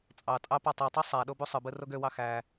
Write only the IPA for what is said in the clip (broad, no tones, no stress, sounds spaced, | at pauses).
t͡sʼ ɑ tʼ ɑ p ɑ tˤ i tˤ u sˤ æ ɗ o b u sˤ ɯ b ɯ r o ɡ ø w ɑ x æ